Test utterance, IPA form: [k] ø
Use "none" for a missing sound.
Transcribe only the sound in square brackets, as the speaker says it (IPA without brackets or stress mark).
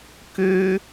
k